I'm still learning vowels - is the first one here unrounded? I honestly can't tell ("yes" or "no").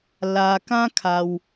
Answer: yes